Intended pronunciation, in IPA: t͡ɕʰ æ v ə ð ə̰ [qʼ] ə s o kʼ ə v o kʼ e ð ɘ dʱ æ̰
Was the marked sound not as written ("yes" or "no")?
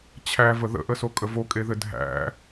yes